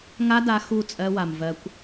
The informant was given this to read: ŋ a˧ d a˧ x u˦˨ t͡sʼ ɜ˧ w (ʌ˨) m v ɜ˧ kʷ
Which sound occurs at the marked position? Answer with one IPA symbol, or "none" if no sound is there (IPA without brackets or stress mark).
a˨